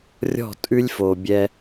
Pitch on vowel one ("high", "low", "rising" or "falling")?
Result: falling